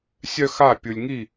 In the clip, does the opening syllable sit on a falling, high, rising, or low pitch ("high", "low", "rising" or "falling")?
high